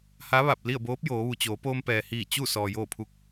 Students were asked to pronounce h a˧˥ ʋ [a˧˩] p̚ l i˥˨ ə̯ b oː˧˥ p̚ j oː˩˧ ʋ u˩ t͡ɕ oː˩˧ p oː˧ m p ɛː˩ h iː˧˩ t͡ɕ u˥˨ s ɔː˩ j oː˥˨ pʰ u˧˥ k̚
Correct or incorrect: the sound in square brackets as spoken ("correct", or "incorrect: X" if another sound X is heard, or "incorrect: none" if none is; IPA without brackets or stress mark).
correct